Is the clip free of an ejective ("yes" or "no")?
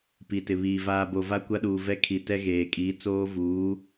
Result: no